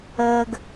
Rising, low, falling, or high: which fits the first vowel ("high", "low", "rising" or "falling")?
low